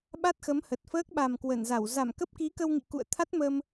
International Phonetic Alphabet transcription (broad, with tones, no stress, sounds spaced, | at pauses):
ɓ a˦˥ t̚ x ə˨˦ m h ə˨˩ t̚ f əː˦˥ k̚ ɓ a˨˩ m k w ə˧˩ n z a˧˩ w z a˧˩ m k ə˦˥ p̚ k i˨˦ k ə˧ w ŋ ḭ˧˨ k ṵ˧˨ ə̯ t̪ʰ a˦˥ t̚ m əː˧ m